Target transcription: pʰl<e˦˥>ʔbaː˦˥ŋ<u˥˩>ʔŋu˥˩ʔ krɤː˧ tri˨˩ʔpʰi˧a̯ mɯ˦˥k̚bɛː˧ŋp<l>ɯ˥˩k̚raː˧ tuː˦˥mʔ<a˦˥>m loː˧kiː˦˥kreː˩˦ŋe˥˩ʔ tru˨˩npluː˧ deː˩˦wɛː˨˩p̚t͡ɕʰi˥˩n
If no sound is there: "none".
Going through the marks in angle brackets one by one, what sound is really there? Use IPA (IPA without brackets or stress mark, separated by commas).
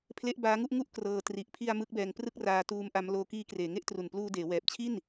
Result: e˦˥, u˥˩, r, a˦˥